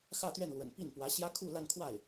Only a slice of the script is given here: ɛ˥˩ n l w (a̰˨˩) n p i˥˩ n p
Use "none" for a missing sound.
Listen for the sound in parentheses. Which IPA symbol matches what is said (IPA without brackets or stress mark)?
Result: ə̰˨˩